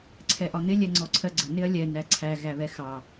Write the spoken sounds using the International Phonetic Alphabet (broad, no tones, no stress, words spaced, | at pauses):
ǀʰɛʔɒn̪ɪ lʲɛŋ͡ǀɔǀʰɜɡ͡ǀə nɪɐ̯lʲɛ næǀʰæ ɣæβɛxɑ